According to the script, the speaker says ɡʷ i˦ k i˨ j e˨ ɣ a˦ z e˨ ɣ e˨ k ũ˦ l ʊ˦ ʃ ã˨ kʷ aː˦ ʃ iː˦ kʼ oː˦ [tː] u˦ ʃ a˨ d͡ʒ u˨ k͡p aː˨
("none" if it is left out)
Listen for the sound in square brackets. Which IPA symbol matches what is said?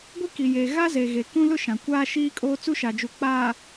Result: t͡s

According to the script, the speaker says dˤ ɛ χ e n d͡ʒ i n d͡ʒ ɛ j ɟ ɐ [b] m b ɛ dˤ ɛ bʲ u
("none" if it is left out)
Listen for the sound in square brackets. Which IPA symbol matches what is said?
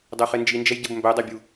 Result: b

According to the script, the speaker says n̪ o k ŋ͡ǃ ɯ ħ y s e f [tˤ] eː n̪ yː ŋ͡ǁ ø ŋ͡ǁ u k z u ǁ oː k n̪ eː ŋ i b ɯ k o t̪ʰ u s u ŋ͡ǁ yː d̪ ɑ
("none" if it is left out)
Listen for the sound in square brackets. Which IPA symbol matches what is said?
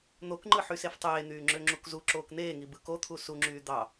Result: tˤ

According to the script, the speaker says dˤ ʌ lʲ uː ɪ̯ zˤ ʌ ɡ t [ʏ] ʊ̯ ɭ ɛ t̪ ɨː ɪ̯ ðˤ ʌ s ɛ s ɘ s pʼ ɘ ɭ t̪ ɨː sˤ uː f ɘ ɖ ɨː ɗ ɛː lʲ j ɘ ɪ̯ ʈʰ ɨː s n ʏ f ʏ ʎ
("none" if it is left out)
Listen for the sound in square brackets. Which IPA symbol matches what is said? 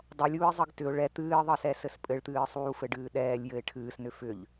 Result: ʏ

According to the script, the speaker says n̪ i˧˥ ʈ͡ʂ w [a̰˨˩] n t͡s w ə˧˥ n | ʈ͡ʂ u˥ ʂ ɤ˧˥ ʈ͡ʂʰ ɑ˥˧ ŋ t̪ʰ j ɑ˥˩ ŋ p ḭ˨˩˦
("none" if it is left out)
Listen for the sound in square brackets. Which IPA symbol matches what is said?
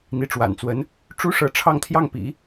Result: a̰˨˩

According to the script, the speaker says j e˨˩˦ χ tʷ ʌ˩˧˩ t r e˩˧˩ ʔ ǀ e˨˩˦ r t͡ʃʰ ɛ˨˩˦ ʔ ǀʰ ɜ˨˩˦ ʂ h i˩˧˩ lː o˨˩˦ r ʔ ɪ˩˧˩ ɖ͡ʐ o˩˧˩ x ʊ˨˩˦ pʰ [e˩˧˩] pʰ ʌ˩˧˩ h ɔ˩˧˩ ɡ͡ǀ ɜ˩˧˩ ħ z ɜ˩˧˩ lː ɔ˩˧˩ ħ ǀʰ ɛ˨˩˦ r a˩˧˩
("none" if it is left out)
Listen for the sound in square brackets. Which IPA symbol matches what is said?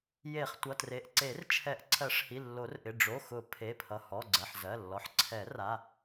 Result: e˩˧˩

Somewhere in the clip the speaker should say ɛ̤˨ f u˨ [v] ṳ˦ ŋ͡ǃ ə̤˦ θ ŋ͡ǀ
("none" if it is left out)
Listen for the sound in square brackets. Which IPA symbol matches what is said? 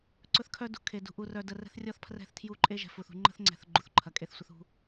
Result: θ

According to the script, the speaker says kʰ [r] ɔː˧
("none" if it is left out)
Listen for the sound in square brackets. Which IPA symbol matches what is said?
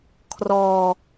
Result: r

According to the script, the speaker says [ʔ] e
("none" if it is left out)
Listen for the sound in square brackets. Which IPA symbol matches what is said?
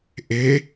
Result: ʔ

